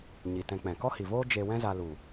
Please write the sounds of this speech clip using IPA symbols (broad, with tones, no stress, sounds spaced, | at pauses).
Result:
ɲ i˨ t ɛ̃˧ k͡p ɛ̃˨ k ɔ˦ h i˨ v oː˦ d͡ʒ e˧ w ɛ̃˦ z a˧ l u˨